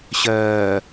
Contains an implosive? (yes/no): no